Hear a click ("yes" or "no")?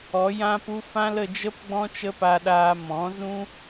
no